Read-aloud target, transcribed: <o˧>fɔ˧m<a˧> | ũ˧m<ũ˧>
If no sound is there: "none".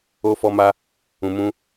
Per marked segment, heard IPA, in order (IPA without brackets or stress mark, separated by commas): o˧, a˧, ũ˦